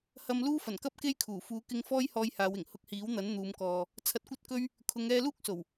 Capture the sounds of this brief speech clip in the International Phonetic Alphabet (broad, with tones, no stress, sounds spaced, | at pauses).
h ɐ˥ m l uː˥ f ɐ˨˩ n k ɐ˥ p̚ k e˥ j kʰ uː˨˩ f uː˨˧ k ɪ˧ ŋ f ɔː˥ j h ɔː˧ j h aː˨˧ w ɪ˨˩ ŋ h ʊ˧ k̚ h iː˨˥ w n̪ ɐ˨˥ n n̪ uː˨˧ m k ɔː˨ | t͡sʰ ɐ˧ t̚ kʷ ɐ˥ t̚ k ɵ˥ ɥ | kʰ ʊ˨˧ ŋ ɛː˧ l uː˥ k̚ s o˨˩ w